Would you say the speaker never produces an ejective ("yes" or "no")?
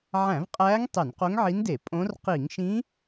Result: no